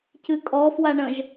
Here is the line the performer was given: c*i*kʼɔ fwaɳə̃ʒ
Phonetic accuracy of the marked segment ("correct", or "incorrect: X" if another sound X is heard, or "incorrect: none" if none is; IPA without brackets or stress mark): incorrect: ɨ